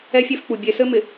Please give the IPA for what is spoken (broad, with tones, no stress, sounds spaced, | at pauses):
ɛ˦ fʲ e˦ f k͡p u˨ bʲ e˨ s ɘ˦ m ɪ˨